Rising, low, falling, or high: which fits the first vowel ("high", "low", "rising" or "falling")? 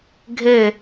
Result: falling